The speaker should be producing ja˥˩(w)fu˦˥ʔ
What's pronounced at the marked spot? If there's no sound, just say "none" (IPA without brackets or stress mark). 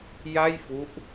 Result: j